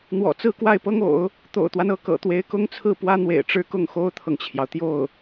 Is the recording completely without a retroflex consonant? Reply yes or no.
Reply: no